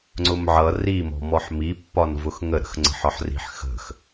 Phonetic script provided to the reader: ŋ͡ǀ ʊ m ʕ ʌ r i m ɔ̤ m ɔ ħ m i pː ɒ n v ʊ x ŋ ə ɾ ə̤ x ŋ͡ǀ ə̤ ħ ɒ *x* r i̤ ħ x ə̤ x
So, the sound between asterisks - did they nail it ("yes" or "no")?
no